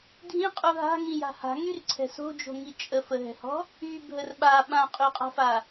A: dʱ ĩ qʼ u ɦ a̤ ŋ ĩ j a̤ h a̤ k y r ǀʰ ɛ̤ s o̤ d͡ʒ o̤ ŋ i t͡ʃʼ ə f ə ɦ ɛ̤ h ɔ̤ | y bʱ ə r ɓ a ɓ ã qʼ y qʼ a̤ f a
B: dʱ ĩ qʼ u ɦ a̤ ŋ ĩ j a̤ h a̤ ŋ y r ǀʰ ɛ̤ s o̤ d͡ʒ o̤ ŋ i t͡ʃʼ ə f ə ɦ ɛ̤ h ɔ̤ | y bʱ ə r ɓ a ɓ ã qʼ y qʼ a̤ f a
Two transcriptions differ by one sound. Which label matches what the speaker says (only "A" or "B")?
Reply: B